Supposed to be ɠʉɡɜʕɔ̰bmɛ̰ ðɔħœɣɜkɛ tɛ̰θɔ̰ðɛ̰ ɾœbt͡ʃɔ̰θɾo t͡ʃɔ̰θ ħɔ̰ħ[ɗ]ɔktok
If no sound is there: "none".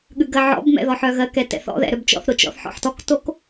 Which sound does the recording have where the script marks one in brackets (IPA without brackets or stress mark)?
t